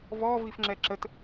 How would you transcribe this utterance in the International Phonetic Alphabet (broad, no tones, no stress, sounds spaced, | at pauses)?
v ɔ v i f ŋ͡ǁ ɛ ǁ ə t